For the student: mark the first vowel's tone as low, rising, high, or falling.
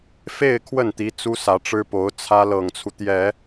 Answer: falling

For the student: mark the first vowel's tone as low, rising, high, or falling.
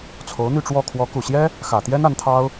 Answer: rising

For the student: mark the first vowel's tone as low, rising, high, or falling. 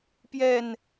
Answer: low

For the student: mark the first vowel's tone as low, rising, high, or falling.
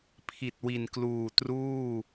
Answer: low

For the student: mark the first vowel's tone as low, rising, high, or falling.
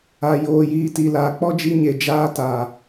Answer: low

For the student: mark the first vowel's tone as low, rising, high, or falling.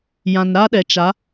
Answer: low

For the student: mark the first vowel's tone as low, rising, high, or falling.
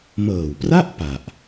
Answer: low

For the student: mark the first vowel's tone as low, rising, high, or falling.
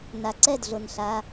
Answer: low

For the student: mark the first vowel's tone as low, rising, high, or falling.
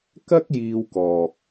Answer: high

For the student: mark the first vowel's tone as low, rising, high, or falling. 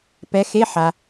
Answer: rising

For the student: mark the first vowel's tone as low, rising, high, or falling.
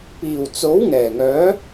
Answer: low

